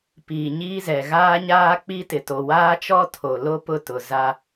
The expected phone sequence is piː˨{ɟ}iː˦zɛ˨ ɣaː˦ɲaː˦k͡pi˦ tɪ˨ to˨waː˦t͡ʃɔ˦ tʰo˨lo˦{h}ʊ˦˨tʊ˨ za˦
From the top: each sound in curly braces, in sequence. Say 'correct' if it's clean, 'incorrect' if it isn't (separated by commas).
incorrect, incorrect